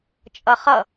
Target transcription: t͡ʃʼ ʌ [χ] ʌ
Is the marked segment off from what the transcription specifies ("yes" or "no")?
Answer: no